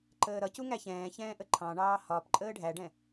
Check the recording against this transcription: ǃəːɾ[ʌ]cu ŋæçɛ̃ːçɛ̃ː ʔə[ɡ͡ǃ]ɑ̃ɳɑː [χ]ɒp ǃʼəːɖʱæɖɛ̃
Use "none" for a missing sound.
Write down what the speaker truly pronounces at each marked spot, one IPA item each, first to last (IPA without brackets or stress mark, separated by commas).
ʌ, ǃʰ, h